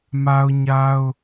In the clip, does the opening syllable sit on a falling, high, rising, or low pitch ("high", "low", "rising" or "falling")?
high